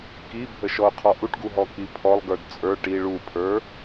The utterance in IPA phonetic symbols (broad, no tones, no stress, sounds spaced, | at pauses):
k i bʱ ə ʃ ɔ ʊ̯ qʰ ɔ ʔ u ʈ ɡ u ɦ ɔ k i pʰ ɔ lˠ ɡ ə˞ d t͡sʼ ə˞ ʈ i ɭ u pʰ ə˞